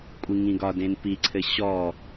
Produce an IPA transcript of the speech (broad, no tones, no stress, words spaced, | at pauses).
kʷʼiŋĩɡɒ dẽnpiǀʰɘ ɕɔ